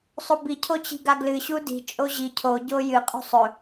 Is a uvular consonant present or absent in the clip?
present